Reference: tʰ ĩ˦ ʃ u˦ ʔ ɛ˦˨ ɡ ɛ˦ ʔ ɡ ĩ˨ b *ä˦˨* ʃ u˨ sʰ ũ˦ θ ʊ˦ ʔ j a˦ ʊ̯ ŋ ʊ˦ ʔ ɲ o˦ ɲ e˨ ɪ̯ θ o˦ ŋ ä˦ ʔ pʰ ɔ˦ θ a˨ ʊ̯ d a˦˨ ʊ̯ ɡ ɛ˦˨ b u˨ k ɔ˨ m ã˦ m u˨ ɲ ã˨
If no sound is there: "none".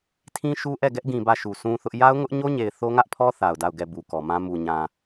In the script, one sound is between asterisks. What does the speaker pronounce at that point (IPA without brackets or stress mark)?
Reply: ä˦˨